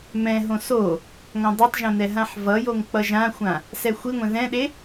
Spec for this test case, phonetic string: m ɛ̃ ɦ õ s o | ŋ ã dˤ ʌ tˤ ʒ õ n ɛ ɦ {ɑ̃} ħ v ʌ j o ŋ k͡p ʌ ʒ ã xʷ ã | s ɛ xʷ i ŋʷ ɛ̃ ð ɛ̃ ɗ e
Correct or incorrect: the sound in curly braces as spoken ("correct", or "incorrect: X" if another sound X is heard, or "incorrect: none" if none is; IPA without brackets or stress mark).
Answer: incorrect: ã